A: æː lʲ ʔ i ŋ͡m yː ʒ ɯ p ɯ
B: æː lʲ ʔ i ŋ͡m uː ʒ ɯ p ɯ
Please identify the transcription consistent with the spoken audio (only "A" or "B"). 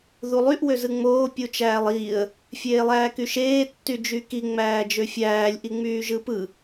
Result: A